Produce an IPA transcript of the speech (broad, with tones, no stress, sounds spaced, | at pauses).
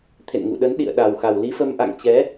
t̪ʰ ḛ˧˨ n ŋ ṵ˧˨ ɗ ə˨˦ n ɗ ḭ˧˨ ə̯ ɗ a˨˩ w x a˨˩ w l i˨˦ f ə˧ m ʔ a̰˧˨ ŋ t͡ɕ ɛ˨˦